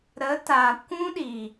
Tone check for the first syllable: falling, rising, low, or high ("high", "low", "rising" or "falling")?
rising